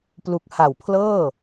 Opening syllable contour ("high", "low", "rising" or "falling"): low